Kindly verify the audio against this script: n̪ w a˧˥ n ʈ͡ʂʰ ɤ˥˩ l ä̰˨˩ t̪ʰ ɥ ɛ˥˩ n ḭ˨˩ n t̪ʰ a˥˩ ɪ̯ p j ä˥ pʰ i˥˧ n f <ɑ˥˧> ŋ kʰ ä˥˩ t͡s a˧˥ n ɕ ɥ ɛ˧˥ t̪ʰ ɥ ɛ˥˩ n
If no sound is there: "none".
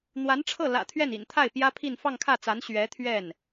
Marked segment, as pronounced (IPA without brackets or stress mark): ɑ˥˧